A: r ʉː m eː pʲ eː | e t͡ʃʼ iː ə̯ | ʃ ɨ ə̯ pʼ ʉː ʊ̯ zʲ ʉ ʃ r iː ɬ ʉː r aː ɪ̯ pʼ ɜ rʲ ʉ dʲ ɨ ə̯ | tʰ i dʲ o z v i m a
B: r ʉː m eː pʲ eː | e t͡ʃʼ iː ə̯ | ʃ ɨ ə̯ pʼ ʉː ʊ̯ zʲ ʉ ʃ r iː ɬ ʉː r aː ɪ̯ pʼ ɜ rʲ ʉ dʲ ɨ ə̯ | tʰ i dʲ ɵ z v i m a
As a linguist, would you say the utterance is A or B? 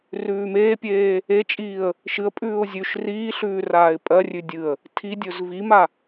B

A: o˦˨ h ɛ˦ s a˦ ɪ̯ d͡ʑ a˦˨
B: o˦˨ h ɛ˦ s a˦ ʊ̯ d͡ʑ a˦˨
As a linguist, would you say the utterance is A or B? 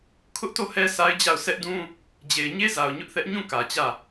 A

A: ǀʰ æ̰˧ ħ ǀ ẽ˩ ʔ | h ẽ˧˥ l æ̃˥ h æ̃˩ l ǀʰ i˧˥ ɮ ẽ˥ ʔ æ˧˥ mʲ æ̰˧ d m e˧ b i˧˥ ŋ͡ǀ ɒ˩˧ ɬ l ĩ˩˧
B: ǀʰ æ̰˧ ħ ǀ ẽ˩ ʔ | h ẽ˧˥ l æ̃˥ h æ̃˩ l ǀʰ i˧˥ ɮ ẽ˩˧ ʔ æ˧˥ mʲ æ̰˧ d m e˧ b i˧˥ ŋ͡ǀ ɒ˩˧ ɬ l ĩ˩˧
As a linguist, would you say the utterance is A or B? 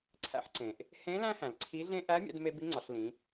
A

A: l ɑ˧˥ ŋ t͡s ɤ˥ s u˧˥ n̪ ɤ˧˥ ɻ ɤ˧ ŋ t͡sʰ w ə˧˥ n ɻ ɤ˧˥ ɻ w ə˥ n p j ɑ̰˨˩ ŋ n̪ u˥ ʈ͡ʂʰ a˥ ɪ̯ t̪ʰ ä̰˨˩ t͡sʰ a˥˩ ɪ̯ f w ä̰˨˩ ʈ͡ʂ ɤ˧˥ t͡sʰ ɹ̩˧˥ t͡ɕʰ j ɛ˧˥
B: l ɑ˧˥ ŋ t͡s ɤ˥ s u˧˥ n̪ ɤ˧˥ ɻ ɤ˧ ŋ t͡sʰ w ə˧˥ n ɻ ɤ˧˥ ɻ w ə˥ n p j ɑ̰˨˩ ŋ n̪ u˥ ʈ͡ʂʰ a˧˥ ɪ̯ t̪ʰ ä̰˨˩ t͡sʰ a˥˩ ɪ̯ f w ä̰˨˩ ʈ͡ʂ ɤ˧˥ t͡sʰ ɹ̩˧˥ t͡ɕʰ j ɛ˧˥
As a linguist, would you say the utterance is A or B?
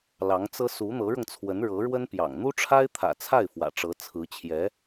A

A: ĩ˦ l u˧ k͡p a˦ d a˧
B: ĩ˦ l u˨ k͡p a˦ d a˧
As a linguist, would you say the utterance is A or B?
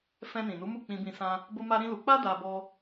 A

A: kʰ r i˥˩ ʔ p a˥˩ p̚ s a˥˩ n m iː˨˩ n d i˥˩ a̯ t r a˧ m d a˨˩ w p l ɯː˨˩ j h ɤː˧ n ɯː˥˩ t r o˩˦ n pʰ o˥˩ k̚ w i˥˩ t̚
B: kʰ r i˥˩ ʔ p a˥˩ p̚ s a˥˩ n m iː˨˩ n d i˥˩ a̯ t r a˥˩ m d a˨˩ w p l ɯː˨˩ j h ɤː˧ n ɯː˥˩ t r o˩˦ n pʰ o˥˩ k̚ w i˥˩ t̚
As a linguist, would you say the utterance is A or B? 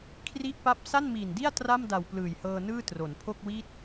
B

